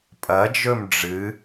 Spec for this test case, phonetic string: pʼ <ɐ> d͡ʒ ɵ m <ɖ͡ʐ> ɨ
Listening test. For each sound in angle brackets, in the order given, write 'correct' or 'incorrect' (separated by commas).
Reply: correct, correct